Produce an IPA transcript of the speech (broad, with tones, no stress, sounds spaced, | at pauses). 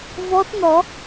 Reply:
v ɔ˦˥ t̚ n ɔ˨˦